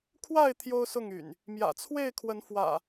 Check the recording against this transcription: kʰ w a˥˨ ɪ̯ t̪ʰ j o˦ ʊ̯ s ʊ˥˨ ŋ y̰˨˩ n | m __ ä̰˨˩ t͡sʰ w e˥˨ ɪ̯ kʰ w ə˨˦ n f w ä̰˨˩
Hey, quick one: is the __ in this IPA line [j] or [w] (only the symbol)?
j